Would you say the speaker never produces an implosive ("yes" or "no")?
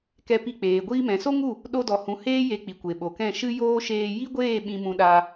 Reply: no